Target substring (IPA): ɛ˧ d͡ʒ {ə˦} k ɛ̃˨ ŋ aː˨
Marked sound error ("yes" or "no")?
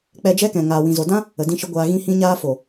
yes